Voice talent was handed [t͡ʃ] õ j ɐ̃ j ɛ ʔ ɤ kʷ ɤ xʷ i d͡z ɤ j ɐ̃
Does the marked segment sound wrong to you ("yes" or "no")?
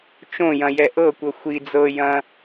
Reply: no